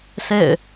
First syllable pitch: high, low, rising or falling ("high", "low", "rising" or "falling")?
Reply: falling